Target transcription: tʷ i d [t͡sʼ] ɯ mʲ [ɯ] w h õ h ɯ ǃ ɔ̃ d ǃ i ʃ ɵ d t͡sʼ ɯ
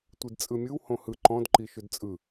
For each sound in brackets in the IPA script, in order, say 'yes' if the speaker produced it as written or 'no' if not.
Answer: yes, yes

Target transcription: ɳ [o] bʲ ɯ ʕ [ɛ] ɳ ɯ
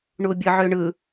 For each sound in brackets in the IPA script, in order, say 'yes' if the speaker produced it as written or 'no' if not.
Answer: no, no

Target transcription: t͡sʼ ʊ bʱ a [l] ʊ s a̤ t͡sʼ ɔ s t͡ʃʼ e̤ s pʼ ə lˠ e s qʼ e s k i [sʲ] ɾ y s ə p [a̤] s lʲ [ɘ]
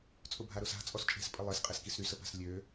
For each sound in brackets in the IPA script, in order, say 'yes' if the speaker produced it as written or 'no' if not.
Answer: no, no, yes, no

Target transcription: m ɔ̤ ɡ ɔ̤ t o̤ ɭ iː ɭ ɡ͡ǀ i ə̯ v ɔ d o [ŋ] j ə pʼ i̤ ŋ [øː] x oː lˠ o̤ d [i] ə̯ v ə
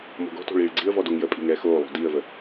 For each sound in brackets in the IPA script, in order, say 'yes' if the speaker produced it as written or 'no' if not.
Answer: yes, no, no

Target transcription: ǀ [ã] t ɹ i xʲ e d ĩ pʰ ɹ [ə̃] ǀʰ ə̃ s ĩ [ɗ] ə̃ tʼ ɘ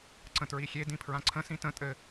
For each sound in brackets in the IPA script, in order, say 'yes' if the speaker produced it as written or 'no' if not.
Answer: no, no, no

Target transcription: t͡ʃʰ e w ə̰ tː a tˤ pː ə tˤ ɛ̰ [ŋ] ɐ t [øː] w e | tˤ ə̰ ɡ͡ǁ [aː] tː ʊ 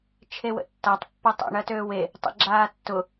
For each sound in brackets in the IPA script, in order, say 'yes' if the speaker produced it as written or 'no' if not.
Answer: no, yes, yes

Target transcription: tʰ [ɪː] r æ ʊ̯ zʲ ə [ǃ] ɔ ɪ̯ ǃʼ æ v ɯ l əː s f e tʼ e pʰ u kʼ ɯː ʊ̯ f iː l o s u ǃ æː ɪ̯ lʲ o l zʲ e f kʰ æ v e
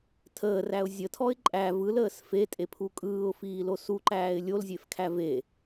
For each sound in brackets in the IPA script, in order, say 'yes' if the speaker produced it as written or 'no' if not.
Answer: no, no

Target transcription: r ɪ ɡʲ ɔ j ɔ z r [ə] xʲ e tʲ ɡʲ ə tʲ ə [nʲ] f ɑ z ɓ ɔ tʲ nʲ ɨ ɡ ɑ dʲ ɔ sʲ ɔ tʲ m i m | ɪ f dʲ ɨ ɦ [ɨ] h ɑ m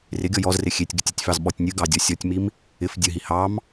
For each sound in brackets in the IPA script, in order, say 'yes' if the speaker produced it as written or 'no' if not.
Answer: no, no, no

